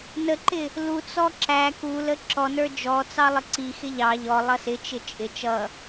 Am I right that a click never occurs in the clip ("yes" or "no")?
no